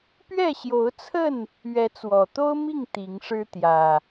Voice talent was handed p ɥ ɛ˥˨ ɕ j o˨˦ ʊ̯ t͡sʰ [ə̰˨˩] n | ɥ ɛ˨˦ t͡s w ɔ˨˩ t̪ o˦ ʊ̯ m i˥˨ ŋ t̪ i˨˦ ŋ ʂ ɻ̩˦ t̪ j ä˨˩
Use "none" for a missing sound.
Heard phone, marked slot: ə˥˨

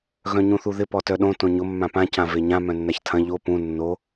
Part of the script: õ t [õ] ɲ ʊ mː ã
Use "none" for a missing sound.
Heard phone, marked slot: õ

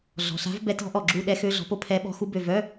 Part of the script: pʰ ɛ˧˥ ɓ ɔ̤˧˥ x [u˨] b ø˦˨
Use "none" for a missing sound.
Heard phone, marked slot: u˧˥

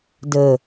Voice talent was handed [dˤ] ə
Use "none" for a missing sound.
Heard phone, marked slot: d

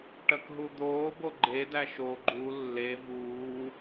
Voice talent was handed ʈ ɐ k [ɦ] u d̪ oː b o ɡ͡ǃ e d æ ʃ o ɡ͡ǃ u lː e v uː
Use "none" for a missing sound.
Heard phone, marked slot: ɦ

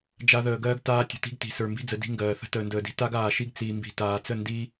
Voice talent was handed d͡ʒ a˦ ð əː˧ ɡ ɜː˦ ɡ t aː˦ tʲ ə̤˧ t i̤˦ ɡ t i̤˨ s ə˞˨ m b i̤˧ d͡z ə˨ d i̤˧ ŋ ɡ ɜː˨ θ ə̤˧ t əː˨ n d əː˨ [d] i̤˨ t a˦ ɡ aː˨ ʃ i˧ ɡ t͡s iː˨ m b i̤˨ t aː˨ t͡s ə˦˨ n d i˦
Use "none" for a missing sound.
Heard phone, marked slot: d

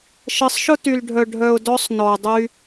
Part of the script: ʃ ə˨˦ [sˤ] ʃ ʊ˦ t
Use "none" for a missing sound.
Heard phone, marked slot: sˤ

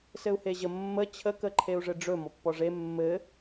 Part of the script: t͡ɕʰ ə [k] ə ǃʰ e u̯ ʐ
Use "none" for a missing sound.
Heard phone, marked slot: k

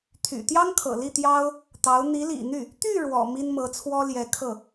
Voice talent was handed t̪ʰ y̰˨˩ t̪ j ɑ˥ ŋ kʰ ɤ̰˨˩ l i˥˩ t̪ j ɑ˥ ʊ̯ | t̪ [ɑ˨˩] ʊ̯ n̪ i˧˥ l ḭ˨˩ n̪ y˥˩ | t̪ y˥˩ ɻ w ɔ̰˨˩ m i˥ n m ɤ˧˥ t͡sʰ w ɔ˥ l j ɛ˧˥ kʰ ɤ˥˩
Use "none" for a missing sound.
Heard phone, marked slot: ɑ˧˥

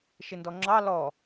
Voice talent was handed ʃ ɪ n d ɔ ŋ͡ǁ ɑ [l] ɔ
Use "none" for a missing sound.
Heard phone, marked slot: l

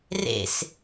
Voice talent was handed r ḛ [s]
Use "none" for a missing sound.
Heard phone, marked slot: s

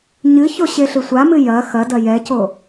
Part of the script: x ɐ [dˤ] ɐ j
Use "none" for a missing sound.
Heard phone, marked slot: d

